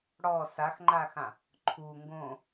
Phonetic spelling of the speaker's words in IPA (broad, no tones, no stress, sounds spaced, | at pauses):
ɽ ɔ s a x ŋ͡ǃ a x ã | ǃʰ u ŋ ɡ õ